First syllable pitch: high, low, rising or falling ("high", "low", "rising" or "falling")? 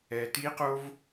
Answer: low